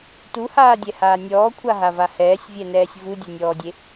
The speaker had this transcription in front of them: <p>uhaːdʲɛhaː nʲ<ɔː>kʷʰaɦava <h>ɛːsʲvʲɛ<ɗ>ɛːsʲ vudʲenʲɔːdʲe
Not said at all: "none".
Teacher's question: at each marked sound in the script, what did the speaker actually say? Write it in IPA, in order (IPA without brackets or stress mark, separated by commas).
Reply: t, ɔː, h, n